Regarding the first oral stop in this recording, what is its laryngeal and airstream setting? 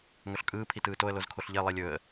ejective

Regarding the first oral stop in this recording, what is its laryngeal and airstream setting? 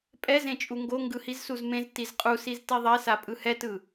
ejective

